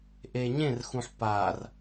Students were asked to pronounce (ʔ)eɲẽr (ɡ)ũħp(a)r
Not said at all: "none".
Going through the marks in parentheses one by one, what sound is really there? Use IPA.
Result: ʔ, x, a

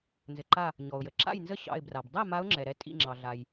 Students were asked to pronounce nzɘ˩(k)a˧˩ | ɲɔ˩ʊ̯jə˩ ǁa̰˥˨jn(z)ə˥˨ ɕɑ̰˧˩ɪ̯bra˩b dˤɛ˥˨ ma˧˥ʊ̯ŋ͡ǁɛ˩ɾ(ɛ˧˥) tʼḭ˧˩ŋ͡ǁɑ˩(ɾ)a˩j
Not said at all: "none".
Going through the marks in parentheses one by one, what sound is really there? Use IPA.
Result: ǃ, z, ɛ˧˥, ɮ

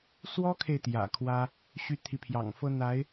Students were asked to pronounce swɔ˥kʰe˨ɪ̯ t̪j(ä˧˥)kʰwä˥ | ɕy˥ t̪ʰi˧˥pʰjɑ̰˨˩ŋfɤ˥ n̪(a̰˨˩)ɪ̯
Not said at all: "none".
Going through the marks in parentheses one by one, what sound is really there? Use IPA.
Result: ä̰˨˩, a˧˥

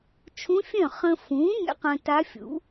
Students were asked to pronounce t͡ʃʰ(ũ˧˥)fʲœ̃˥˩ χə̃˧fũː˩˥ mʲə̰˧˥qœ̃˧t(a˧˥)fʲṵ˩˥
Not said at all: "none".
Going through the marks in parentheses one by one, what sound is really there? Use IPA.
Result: ũ˧˥, a˧˥

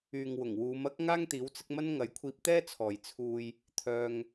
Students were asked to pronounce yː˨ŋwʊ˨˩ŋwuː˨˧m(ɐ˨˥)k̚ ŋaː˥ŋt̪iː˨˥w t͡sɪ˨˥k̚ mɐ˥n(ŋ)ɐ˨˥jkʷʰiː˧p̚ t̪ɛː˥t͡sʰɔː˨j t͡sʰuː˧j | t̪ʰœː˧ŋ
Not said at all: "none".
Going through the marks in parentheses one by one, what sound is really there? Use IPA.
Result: ɐ˥, ŋ

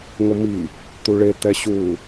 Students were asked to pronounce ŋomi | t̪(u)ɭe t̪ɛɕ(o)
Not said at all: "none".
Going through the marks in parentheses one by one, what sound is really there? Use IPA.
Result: u, u

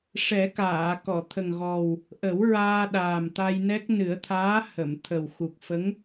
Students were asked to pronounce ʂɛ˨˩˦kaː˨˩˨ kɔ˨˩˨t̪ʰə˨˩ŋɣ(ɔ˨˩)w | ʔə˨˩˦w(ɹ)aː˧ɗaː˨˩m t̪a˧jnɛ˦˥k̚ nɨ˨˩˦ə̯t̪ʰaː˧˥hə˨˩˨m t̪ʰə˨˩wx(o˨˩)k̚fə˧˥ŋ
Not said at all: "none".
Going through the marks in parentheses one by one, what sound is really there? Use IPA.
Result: ɔ˨˩, ɹ, u˨˩

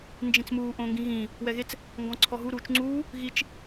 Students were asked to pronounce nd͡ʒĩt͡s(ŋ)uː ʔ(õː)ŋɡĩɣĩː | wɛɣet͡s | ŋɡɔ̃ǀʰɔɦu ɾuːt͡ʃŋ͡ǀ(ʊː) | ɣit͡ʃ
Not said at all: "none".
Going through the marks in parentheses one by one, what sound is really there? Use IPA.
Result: m, õː, uː

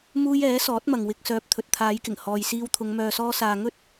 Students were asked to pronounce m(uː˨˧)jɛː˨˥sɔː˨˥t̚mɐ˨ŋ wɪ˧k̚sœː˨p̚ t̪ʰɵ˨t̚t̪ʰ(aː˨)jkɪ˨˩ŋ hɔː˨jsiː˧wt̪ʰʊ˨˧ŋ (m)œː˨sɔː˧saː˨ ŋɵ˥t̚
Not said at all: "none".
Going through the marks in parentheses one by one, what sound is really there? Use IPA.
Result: uː˥, aː˨˧, m

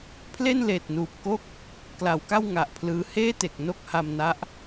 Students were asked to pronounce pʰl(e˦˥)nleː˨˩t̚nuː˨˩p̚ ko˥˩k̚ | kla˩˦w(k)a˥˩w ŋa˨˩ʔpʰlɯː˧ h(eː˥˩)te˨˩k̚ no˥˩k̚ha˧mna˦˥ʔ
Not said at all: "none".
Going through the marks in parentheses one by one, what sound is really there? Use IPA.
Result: e˥˩, k, eː˥˩

